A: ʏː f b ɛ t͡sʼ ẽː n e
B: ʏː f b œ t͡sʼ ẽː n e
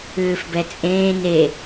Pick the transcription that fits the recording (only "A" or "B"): A